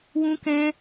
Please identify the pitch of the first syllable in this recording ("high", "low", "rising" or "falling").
high